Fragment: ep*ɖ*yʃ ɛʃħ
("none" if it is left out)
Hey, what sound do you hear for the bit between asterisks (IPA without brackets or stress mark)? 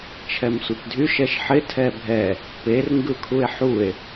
dʱ